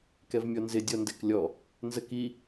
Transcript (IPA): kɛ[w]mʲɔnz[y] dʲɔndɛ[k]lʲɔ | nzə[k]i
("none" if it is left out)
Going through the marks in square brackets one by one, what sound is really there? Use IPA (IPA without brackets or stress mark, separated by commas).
v, ɪ, k, k